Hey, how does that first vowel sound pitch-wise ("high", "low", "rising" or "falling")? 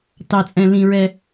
low